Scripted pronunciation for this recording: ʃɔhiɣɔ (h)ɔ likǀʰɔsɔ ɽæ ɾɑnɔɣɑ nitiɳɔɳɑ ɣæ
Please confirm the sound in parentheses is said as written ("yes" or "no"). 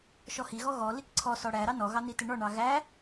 no